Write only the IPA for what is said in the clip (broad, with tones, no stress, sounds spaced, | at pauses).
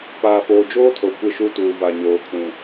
p aː˨ f oː˨ d͡ʒ oː˦ tʰ o˨ kʷ ɪ˦˨ ʃ u˦ t uː˨ v a˨ ɲ oː˨ kʰ ũ˨